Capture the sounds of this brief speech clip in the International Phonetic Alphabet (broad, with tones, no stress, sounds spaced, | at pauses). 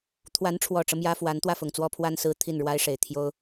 t̪ʰ w a˧˥ n ʈ͡ʂʰ w ɔ˨˩ ʈ͡ʂ ɤ˦ m j ä˥ f w a˧˥ n t̪ w ä˥˩ f ʊ˨˩ ŋ t͡s w ɔ˥˧ pʰ w a˥˧ n s ɹ̩˥˧ t̪ʰ i˥˩ n ɻ w a˥ ɪ̯ ʂ e˨˩ ɪ̯ t̪ʰ j o˥ ʊ̯